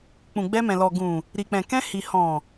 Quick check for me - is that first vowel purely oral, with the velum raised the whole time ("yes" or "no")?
no